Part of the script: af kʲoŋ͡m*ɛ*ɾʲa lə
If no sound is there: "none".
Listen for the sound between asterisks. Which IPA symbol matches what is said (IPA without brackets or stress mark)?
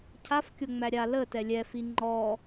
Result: æ